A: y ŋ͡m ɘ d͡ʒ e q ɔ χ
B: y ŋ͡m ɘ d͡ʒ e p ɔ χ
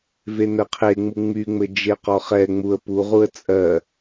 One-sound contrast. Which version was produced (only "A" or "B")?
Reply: A